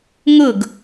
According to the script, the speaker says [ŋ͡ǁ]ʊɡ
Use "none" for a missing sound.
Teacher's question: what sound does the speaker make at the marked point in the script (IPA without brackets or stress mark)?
ŋ